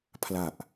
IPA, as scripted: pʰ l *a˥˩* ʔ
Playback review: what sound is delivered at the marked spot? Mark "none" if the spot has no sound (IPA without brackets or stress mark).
a˨˩